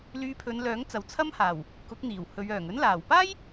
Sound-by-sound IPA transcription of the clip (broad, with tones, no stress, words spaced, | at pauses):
lyː˧pʰɵ˨˧nlœː˨˥ŋ t͡sɐ˨wt͡sʰɐ˥mhaː˨˩w | kʊ˨˥k̚n̪iː˨˩w hɵ˨˧ɥœː˨˩ŋ ɵ˥nlaː˨˩w paː˥j